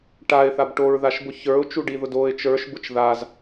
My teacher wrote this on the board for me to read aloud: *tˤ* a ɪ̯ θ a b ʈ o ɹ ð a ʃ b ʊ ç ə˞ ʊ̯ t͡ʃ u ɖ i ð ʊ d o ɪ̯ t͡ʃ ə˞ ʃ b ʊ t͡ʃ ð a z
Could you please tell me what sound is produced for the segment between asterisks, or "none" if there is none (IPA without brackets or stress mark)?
ʈ